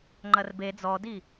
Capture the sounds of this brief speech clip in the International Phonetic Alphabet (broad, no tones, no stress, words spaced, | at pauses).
ŋ͡ǃɐrbe d͡zɔdi